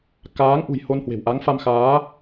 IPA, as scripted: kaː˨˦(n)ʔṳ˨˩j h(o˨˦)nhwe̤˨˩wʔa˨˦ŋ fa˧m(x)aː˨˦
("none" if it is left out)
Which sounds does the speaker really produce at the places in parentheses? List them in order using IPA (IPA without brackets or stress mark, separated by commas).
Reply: ŋ, o˧, x